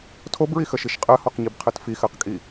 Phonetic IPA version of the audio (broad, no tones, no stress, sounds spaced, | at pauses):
tʰ o b ɹ i x ə ʃ i ʃ qʼ ɜ h ɔ q ɲ i b qʰ ɜ t f i x ɜ q kʼ i